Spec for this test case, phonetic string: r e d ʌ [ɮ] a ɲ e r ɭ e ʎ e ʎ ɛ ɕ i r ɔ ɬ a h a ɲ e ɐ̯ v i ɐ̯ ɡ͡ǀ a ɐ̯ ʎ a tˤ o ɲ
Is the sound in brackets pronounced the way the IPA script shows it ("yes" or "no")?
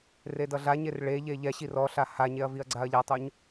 yes